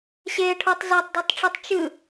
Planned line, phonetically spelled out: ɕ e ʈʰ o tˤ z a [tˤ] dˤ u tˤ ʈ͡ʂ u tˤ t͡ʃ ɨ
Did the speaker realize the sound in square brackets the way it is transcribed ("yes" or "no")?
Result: yes